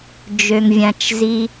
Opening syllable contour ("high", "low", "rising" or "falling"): low